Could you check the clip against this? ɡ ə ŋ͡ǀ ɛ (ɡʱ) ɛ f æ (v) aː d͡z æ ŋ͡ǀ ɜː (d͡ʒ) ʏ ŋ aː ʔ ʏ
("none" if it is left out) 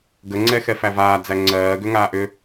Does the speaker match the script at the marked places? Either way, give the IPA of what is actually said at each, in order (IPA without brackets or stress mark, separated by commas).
x, v, ɡ